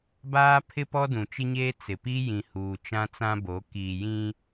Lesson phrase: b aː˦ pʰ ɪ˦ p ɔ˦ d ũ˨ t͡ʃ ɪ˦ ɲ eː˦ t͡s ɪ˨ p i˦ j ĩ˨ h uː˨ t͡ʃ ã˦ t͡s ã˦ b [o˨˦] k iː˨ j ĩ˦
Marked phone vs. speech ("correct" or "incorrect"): correct